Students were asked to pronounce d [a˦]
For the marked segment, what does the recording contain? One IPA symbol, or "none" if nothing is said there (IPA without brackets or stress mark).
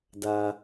a˦